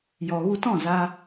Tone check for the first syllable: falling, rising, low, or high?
low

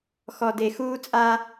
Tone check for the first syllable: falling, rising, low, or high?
low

